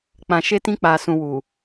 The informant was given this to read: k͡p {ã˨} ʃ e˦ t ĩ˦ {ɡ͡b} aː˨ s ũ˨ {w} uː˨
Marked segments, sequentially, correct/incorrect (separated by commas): correct, incorrect, correct